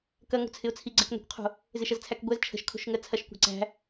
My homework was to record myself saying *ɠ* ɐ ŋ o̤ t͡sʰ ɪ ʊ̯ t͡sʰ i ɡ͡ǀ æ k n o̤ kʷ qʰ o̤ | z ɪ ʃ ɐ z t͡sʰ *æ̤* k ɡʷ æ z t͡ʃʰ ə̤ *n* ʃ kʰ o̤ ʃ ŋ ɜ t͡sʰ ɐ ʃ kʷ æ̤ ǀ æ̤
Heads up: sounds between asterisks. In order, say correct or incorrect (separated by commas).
incorrect, incorrect, incorrect